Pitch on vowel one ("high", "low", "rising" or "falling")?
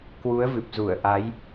rising